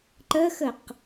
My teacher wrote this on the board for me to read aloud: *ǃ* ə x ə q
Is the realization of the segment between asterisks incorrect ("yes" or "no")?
no